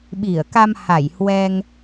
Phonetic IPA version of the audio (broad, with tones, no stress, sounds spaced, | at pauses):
ɓ i˧˩ ə̯ k a˧ m h a˧˩ j h w ɛ˧ ŋ